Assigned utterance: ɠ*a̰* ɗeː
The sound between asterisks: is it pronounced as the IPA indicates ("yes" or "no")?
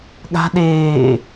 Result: no